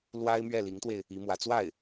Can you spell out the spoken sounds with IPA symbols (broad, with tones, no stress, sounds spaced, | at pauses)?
l w a˥ ɪ̯ m ɥ ɛ˥˩ l i˧˥ ŋ t̪ w e˧ ɪ̯ | i˧˥ m w ä˧˥ t͡s w a˥˩ ɪ̯